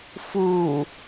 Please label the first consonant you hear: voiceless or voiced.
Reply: voiceless